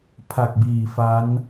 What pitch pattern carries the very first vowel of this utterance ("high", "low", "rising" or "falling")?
low